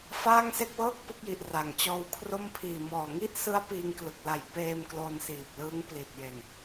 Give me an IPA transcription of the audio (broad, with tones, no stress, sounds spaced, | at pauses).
f aː˥˩ ŋ s e˥˩ k̚ w ɤː˥˩ k̚ p ɯ˦˥ k̚ j i˨˩ ʔ r a˨˩ ŋ t͡ɕ ɔː˧ w kʰ r o˥˩ m pʰ iː˨˩ m ɔː˨˩ ŋ i˥˩ ʔ s ɯ˦˥ a̯ p iː˧ ŋ k l ɯ˨˩ k̚ l a˨˩ j p eː˧ m k l o˧ n s iː˨˩ p̚ l ɯː˦˥ ŋ p l i˨˩ t̚ j e˨˩ n